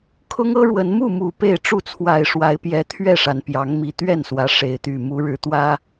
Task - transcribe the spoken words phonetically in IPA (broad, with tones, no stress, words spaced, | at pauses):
kʰʊ˦ŋɤ˦ɻwə˨˦n mu˥˨mu˨˩ pe˥˨ɪ̯ʈ͡ʂu˥˨ t͡sʰwa˨˩ɪ̯ʂwa˨˦ɪ̯pjɛ˨˦ t̪ʰɥɛ˥˨ʂa˩n pjɑ˨˦ŋmi˨˦ t̪ɥɛ˥˨nswä˨˦ ʂe˨˦ɪ̯t̪y˨˩ mu˨˦ɻɻ̩˨˦t̪wä˦